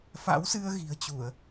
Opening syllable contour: rising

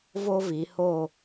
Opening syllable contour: high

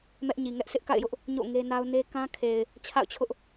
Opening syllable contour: high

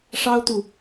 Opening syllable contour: high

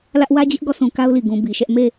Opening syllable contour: high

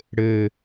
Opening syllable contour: low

